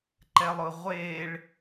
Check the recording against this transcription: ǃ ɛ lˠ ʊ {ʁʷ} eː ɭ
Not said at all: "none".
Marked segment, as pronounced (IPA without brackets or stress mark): ʁʷ